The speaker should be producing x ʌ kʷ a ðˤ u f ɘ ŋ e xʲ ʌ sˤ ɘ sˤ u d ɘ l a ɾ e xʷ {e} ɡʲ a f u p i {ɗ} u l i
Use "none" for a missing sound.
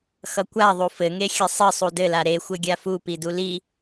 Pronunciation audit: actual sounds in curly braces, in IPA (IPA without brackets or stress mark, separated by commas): ɘ, d